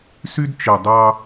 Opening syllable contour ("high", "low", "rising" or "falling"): high